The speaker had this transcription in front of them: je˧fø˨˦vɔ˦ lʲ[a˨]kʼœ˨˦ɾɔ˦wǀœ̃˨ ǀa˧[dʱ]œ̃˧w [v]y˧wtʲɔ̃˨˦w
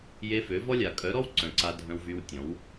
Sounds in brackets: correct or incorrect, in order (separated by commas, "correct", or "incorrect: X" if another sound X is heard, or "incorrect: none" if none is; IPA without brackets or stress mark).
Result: correct, correct, correct